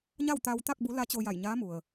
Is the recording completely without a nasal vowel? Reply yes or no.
yes